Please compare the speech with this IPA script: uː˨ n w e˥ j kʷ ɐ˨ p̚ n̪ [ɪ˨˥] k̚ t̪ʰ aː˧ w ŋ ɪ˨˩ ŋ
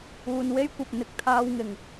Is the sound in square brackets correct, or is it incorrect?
correct